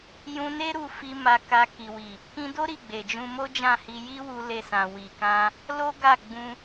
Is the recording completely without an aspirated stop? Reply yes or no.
yes